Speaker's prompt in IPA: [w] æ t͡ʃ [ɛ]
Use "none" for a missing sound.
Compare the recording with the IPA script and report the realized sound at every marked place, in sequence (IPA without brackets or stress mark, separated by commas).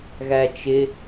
ɣ, ɪ